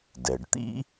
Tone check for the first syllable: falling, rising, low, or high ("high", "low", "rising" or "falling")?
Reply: low